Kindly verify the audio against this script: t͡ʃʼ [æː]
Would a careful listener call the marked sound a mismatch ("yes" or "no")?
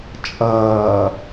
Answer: yes